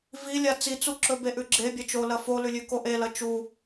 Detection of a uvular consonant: absent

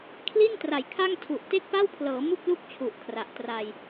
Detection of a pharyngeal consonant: absent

